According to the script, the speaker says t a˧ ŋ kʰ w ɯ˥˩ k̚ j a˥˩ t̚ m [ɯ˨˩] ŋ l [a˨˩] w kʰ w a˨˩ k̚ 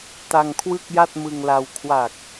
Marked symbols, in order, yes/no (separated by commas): no, no